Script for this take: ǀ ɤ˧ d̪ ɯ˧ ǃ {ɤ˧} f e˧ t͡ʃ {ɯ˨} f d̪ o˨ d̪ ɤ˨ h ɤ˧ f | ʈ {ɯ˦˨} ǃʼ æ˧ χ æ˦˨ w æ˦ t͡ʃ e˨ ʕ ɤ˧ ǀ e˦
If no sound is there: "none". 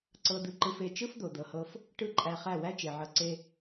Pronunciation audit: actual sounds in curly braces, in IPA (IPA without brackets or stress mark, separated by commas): ɯ˧, ɯ˦, ɯ˦˨